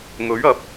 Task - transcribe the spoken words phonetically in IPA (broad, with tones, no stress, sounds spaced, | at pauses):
ŋ ɵ˨˥ ɥ ɐ˨˥ p̚